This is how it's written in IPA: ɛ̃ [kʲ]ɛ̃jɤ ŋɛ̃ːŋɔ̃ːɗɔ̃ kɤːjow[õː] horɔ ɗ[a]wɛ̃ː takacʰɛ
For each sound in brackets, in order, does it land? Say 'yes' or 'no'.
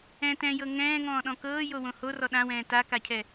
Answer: no, no, no

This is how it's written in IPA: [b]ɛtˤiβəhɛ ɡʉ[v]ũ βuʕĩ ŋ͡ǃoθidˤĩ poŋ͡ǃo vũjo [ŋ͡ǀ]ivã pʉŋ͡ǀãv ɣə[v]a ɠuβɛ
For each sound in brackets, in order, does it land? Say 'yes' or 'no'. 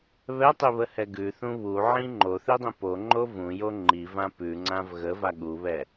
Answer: no, no, no, yes

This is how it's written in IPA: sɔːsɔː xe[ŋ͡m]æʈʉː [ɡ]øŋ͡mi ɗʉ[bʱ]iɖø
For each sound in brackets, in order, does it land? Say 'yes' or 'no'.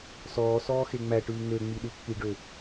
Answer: yes, no, no

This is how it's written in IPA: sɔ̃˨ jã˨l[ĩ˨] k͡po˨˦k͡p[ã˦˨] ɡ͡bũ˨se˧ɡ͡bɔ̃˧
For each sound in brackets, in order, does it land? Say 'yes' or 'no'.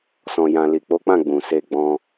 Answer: no, yes

